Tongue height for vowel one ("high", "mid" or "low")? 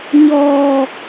mid